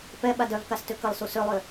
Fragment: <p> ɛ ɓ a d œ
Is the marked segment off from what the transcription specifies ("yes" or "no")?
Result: no